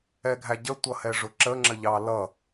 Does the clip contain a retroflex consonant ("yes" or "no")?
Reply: yes